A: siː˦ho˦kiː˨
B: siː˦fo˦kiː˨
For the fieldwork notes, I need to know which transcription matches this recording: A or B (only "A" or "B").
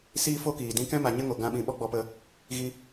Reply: B